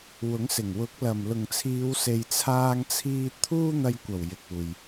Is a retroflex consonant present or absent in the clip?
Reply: absent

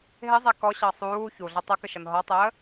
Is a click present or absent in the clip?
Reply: absent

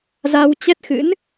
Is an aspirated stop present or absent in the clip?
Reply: absent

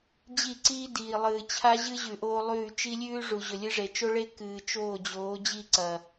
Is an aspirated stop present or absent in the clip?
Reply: present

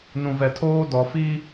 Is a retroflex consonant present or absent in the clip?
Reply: absent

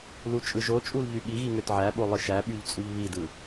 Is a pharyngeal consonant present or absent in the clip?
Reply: present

